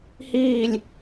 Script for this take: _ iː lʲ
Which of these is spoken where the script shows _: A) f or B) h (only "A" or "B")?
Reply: B